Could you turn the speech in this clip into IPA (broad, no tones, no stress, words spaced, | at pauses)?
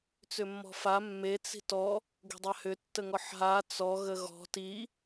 t͡sʏmːɔ̤fa mːe t͡si̤tɔ | ɡe̤dˤahʏ tːəŋɔħɦa t͡sɔ ɣəɣɔ̤ ti